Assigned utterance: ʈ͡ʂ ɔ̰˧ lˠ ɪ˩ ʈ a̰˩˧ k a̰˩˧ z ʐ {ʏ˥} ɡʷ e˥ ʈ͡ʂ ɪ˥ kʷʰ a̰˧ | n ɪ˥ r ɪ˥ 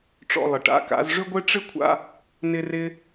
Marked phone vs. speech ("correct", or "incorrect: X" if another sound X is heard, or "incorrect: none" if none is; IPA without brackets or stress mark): correct